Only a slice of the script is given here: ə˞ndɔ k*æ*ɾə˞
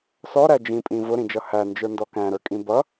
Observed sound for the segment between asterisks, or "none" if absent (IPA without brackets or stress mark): æ̃